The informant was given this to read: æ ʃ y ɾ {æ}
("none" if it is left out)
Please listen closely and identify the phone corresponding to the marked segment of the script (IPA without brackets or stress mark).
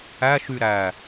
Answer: æ